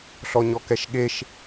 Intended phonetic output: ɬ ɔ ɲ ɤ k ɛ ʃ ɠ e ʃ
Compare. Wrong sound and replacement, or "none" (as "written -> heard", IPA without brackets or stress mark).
ɤ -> ɔ